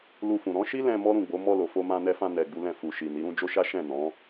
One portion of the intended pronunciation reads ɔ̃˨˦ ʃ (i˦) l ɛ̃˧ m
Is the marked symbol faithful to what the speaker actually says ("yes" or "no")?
yes